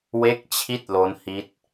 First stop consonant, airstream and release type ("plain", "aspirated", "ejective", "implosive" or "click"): plain